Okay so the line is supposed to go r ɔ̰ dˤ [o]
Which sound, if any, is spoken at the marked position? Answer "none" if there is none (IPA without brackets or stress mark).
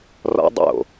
o̰